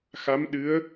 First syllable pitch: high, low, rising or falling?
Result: rising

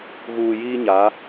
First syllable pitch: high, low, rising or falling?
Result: low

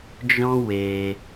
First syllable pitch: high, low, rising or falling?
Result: high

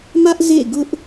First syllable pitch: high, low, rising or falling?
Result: high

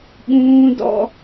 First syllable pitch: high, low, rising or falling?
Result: high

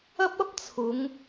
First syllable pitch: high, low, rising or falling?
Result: high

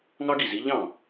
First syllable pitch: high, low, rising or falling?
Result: high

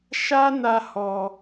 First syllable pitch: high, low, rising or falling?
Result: high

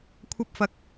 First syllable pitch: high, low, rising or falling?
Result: high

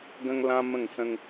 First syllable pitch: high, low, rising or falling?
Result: high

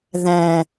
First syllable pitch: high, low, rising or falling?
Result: low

